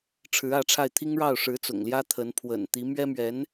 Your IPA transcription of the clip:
ʈ͡ʂʰ ɻ̩˧˥ ä˥˧ ʈ͡ʂʰ a˥˩ ɪ̯ t̪ʰ i˥ ŋ ɻ ɑ˥˩ ʊ̯ ʂ ɻ̩˧˥ t͡s ʊ̰˨˩ ŋ l j ä˥ t̪ʰ ə˧˥ n pʰ w ə̰˨˩ n t̪ i˧˥ m ɥ ɛ˥ m ɥ ɛ˧˥ n

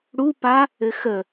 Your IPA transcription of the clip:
ɽ u p a | ɘ x ə

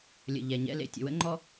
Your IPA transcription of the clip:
lʲ ə̰˨ ʎ ɛ˨ ɲ ɛ̰˦ l ḛ˨ tʲ ə̰˨ w ə̰˦ ŋ͡ǃ ɔ˦

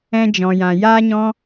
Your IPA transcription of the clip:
ɛ̃˧ d͡ʒ ɔ̃˨ j ã˨ j aː˦ ɲ ɔ̃˦

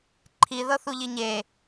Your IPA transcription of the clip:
ǃʰ i ð ɤ θ u ʎ i ɲ e

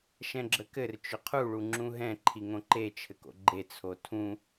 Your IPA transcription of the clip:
ʃ ɛ̃ ɡ͡ǁ ə k ɘ r t͡ʃ ʏ qʰ u ɭ u ŋ͡ǁ ũ ɦ ɛ̃ ǃʰ i ŋ õ ǃ e t͡ʃʰ ɘ k o̰ ɡ͡ǃ e t͡sʰ o tʰ ũ

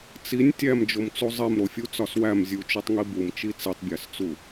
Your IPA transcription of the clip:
t͡s i nʲ tʲ æ m d͡ʒ o m t͡s u zˤ e m ɾ o fʲ u t͡s ɒ s w æ m zʲ u t͡ʃ u tˤ ŋ i b u m t͡ʃ i t͡s i tˤ bʲ æ s t͡s u

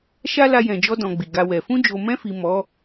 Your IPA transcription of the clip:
ʃ a˦ l a˧ j ɛ̃˨ d͡ʒ ɔ˧ d ɔ̃˧ ɡ͡b i˨ ɡ a˧ w ɛ˨ f ũ˧ d͡ʒ o˨ m ɛ̃˧ f i˨ m ɔ˨˦

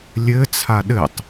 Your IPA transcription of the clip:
lʲ ɘ t͡sʰ a ɗ ɘ tˤ

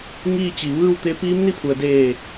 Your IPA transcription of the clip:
ŋ iː˥˨ t͡ɕ i˩ ʋ ɯː˥˨ w t̪ e˧˥ p iː˧˥ m n i˥˨ pʰ u˩ ə̯ d eː˧˩

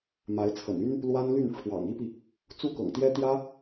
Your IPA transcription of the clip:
m a˧˥ ɪ̯ t͡sʰ ə̰˨˩ n y˥ n | l w a˥ n l y˥˩ n ʈ͡ʂʰ w ɑ̰˨˩ ŋ i˥ p i˨ | t͡s u˥ k ɤ̰˨˩ ŋ t̪ j ɛ˥ t̪ j ä˥

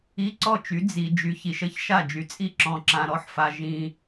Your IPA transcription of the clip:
i˧˥˧ ǀ ɔ˥˩ t͡ʃ y˨˥ d͡z i˨ d͡ʒ y˨ ç i˨ ʃ ə˥˩ ç ʃ a˥˩ d͡ʒ y˨ t͡sʼ i˥˩ ǁ ɔ̃˨ ǁ ã˨ ɾ ɔ˥˩ ħ f a˨ ʒ ĩ˨

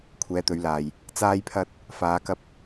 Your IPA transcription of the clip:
kʷʰ ɛː˨˧ t̪ ɵ˨˧ ɥ l aː˨ j | t͡s aː˧ j pʰ ɐ˧ t̚ | f aː˨˧ k ɐ˧ p̚

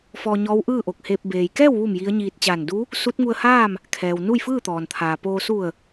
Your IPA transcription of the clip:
f ɔː˧ ɲ ɔː˧˥ w ʔ ɯː˥˨ ʔ o˧˩ k̚ h eː˧ p̚ b eː˩ j k ɛː˥˨ w ʋ u˧˩ m j i˧˥ ə̯ ɲ iː˧ t̚ t͡ɕ aː˧˩ n d u˧˥ | s u˧˥ t̚ ŋ u˧ ə̯ h aː˥˨ m | kʰ ɛː˩ w n u˥˨ j f ɯː˥˨ t̪ ɔː˩ n t̪ʰ aː˩ p oː˧ s u˧˩ ə̯

